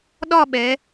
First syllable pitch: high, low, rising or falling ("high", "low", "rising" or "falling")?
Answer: falling